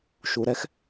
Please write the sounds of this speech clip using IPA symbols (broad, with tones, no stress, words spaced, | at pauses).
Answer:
ʃu˨ ɾɛ˧x